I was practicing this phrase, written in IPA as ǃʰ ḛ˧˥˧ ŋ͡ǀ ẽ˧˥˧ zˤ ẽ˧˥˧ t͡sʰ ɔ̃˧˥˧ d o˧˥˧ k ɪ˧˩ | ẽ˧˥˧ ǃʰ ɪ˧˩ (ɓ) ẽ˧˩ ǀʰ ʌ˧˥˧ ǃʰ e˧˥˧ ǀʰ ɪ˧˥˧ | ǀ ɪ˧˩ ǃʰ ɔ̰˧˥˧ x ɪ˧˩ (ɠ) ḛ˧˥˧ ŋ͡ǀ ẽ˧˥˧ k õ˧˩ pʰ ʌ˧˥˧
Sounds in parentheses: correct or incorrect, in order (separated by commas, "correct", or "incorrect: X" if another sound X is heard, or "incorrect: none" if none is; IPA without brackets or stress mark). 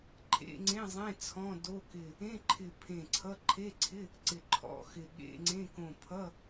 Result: incorrect: pʰ, correct